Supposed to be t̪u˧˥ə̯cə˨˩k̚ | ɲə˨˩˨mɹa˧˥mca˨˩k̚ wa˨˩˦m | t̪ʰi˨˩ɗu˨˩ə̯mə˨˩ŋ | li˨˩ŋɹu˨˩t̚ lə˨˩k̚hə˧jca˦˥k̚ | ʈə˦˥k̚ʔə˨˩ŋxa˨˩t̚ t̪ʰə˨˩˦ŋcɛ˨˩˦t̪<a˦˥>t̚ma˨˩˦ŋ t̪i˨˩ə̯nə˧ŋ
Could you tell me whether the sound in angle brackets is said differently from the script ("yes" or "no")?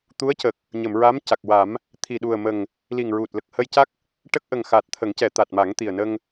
yes